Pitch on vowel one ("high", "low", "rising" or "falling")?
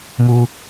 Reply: low